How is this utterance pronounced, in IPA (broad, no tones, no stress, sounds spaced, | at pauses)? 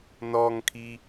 n ɔ ŋ kʰ i